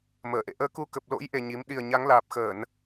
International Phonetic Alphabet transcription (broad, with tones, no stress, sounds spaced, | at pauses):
m əː˧˩ ʔ ḛ˧˨ ʔ əː˧ k u˧ k ə˨˩ p̚ l o̰˧˥ j ʔ e˨˩ ɲ i˨˦ m ɗ i˨˩ ə̯ ɲ a˨˦ ŋ l aː˨˩ p̚ x əː˧˩˨ n